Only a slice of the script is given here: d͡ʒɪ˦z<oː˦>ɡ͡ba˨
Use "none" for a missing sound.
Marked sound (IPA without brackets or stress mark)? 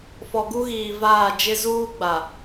uː˦